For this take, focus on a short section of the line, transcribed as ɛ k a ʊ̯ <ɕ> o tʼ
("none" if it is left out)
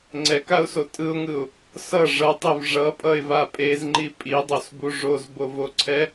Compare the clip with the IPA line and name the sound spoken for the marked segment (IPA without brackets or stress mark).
s